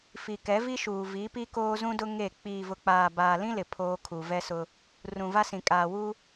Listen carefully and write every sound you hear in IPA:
fi˨kɛ˨˦vi˦ʃuː˨ vi˨˦pi˦ koː˦zũ˦dʊ˦ ŋe˦˨ k͡piː˨vʊ˨k͡paː˨ baː˨lĩ˦lɪ˨ pʰoː˦ kʰu˨vɛ˦sʊ˦ | rũ˨va˦sĩ˨ kʼaː˨wu˦

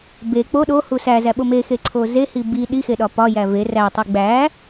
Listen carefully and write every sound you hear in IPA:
be k͡po ɗohu sæzæɓo mexeǀʰo zehi bi ɗixeɗɒ pɒjæ ve rætˤi ɡ͡bæ

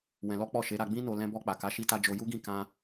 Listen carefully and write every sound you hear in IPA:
wɛ̃˧lɔ˦k͡pɔ˦˨ ʃe˨˦ɾa˧ɡ͡bĩ˦no˧ lɛ̃˧bɔ˧k͡pa˨ka˨˦ ʃi˦ta˦ d͡ʒo˧ju˦ɡĩ˦˨ kã˧

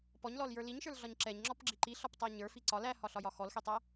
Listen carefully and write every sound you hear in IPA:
pɔɲlɔljə˞ liɲʃə˞lɮɒɲ ǁɛɲŋ͡ǁɔpɡ͡ǁi ǃiɬɒptˤæ ɲə˞fi ǀɒl æhɒɬɒjɒ xɔlxetˤæ

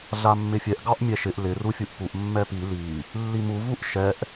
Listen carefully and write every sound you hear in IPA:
ɮamːɪfʲɛʔ ɡɑʔmʲɛʃɪʔ lɪ rufʲuʔpuʔ mːɛpi li | lːimu vuʔʃɛʔ

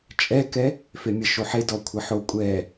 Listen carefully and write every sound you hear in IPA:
t͡ʃʼɛkɛ | femʲə ʃoħedɔ kʷʰəħo kʷʼɛ

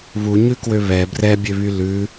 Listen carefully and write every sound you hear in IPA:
βuɲʉkwø βɛ brɛbʲøβy lʉ

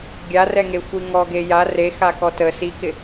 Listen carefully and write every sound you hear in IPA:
ɡʲarɛŋexʷi ŋɔɡe ja rexakɔ tə sikɪ

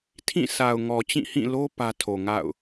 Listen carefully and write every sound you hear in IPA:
tʰĩ˦˨sa˨ʊ̯ŋɔ˨ t͡ɕĩ˦˨hĩ˦˨lo˦ pä˦ tʰo˨ŋa̰˦˨ʊ̯

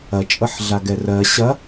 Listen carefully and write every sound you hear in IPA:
ɐt͡ʃʼɤħɮaɡɛ rɜ ɕɐ

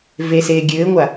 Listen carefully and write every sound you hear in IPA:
veseː ɡʲɘːŋʷa

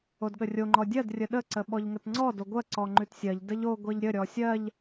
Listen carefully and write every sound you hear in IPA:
odɠərʲo ŋ͡ǃɔdʲɜd rʲəɗə ǀəɓɔʎŋətŋ͡ǀɔ doɡʷɜ ǀɔŋ͡ǃʉtsʲɜʎ dəʎo ɡʷeʎɾʲə ɾʲɔsʲɜʎ

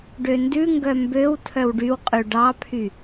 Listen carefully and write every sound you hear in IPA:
ɖøndʉŋɡœ mbøw tʰœwɖywqʼʉ ɖɑpʰy

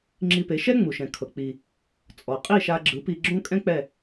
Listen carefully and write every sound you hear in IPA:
ŋ͡ǁi˧pe˩˥ ʃɛ˥ ŋ͡mu˩ʃɛ̃˩kʰɤ˩ k͡pi˩ | t͡sʼɔ˩qʼi˥˩ ʃa˧ ɡ͡ǁɯ˩˥ pi˧ɡ͡ǁõ˥ kʼɛ̃˥ k͡pɛ˥˩

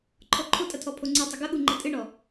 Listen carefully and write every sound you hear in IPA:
ǃʰɔǃʰotʼɐ tʰɔpʰoŋ͡ǀitˤɘ ɡɐɠu ŋ͡ǃɘtʼɨɳɔ

